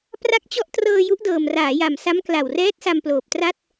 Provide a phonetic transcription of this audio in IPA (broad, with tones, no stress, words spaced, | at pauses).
pra˦˥k̚t͡ɕɔ˦˥ʔtrɤː˧ ju˦˥ʔdɤː˨˩mraː˩˦ja˨˩m sa˦˥mkla˨˩wrɛː˦˥t̚sa˧m ploː˨˩p̚tra˥˩t̚